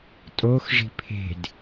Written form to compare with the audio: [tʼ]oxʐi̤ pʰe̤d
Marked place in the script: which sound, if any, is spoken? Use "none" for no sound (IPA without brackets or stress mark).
tʼ